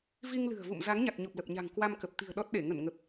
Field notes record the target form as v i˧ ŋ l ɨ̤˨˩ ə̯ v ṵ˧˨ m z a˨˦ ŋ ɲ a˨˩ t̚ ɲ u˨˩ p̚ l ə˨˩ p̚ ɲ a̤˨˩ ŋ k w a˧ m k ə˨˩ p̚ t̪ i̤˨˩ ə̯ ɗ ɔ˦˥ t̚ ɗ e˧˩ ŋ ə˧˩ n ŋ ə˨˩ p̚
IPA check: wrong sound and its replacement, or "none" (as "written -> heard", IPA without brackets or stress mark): none